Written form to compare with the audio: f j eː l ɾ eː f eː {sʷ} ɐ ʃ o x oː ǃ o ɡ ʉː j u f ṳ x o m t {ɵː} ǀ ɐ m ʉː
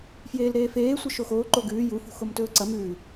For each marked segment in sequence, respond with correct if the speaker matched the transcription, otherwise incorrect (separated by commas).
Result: correct, correct